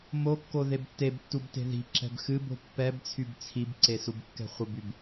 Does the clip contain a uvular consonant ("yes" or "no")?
yes